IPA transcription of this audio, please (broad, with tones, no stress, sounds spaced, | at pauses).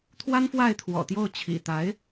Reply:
t̪ʰ w a˥ n f w a˥˩ ɪ̯ t̪ʰ w ɔ̰˨˩ t̪ j o˥˩ ʊ̯ t͡ɕʰ ḭ˨˩ t̪ a˧˥ ɪ̯